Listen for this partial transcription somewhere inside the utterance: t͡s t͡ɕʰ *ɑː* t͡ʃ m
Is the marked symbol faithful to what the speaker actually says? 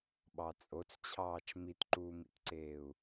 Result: yes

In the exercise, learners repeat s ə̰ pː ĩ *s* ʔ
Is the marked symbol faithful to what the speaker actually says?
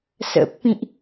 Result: no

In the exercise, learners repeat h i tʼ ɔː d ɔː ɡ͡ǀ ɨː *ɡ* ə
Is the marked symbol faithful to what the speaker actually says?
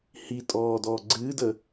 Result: no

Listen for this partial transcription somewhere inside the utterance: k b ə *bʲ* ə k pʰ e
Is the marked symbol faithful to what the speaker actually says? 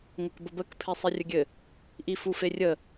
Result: no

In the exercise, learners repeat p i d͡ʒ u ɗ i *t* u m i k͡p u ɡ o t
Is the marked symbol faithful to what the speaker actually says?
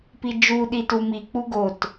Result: yes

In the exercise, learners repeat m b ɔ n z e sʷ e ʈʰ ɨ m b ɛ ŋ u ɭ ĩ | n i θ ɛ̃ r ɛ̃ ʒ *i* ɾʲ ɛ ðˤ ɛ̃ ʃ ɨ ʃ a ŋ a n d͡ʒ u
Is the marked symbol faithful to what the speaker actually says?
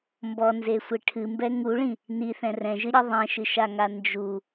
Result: no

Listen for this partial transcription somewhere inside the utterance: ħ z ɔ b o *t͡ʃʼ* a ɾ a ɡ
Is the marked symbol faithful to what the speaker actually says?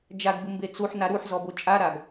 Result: yes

